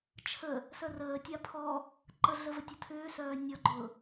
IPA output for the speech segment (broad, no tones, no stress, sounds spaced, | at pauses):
t͡ʃʰ ə | s œ r əː tʲ a pʰ ɔ | ǃ ə ɮ ə v ə tʲ ʊ tʰ ʏː s œː nʲ ɔ ɡ͡ǃ ʊː